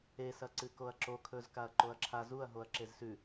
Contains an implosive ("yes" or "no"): no